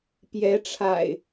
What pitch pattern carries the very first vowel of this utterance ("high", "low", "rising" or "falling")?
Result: rising